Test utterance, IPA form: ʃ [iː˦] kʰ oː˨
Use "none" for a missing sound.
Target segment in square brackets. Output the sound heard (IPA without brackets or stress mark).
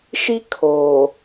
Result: i˦